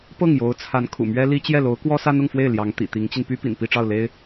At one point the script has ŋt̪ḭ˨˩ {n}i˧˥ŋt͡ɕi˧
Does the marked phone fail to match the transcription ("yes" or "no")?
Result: yes